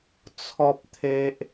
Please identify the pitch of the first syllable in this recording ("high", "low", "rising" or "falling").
high